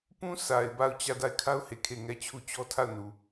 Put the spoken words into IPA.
p ũ˦ s a˨ ɪ̯ b a˦˨ ʊ̯ t͡ɕ ä˦˨ d a˦˨ ɪ̯ kʰ a˦ ʊ̯ h e˨ kʰ e˦˨ ŋ ɛ˦˨ t͡ɕʰ u˦˨ t͡ɕ ɔ˦ tʰ a˦˨ ʊ̯ n u˨

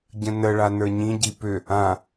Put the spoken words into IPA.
ɟ ə̃ n ə ɭ a n ə˞ ɲ ĩ ɟ i p ʏ | ã

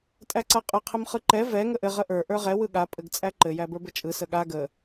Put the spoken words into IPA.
tʼ æ ǀ a qʼ ə qʰ ɘ m χ ɯ ǃ ɛ v ɛ ŋ ə ʔ ɘ ʁ ə ʔ ə˞ ʔ ə˞ ʁ ɛ w ɯ ɠ a pʼ ɘ ɡ t͡sʼ æ ǃ ɘ j æ b ə˞ b ɘ t͡ʃʼ ɯ s ə ɠ a ɡ ə

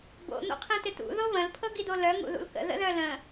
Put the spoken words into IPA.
b o̰ n̪ o̰ qʰ ĩ t ɪ t ṵ ð o β ə̃ l pʰ ɤ ɡ i d o l œ ŋ ṵ ð ṵ l k ə̰ ð ə̰ ð œ l ə̃

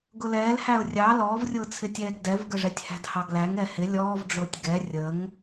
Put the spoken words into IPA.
ɡ ʊ l ɛː l h æ ʊ̯ rʲ ɑ l ɔː v rʲ ʊː t͡sʰ ɪ tʲ ɛː ɡ d ɛ v ɡ ə ʐ ɛ tʲ h æ̤ d h ɑ ɡ l æ ŋ ɛ h ɪ lʲ ɔː v ɖ͡ʐ ʊː tʲ ɡ ɛ rʲ ə ŋ

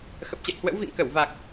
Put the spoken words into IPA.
x ə˨˩ p̚ t͡ɕ ɛ̰˧˨ j h w ə̰˧˥ w v ḭ˧˨ ŋ k ə˧˩ w v a˨˩ k̚

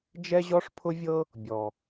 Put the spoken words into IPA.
d͡ʒ ɛ˥ ʑ ɔ˥ ʂ pʰ ʊ˥ vʲ ɤ˥ | bʲ ɔ˩

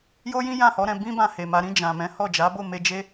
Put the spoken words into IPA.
j o˦ j ĩ˦ j ã˦˨ h ɔ˨˦ ɾ ɛ̃˧ b ĩ˦ b ã˧ h e˨ m a˧ ɾ ĩ˧ d͡ʒ ã˨ m ɛ̃˨˦ h ɔ˦˨ d͡ʒ a˨˦ b o˦˨ m e˧ d͡ʒ e˦

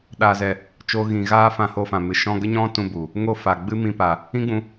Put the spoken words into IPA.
ɗ aː˨ z ɛ˨ | t͡ʃ o˦ ɣ ĩ˧ ɣ aː˦ f ã˧ h o˧ f ã˨ m ɨ˨ ʃ ɔ̃˧ ɡ ə˦ ɲ ɔ̃˦ t ũ˧ b u˨ | ŋ o˧ f a˨ ɡ͡b ɨ˦ m ĩ˧ p a˨ | ĩ˦ ɡ͡b ũ˧

